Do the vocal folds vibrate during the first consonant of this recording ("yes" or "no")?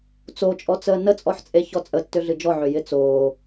no